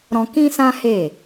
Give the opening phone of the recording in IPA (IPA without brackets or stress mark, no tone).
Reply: ɾ